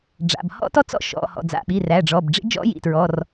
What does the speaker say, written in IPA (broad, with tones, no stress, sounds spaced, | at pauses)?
ɖ͡ʐ a̰˩˧˩ b h ɔ̰˦˥ t ɔ˦˥ t͡s ɔ̰˦˥ ʃ ɔ̰˩˧˩ h ɔ̰˩˧˩ d͡z a̰˩˧˩ ɓ i˩˧˩ r æ˩˧˩ ɖ͡ʐ ɔ˩˧˩ b ɖ͡ʐ ḭ˦˥ d͡ʒ ɔ̰˦˥ j ḭ˩˧˩ t ɹ ɔ˩˧˩ r